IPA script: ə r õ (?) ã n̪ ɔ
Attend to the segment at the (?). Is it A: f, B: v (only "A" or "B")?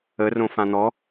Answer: A